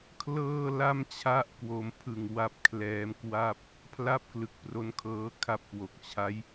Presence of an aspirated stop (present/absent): present